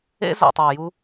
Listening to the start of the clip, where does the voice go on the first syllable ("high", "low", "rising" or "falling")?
high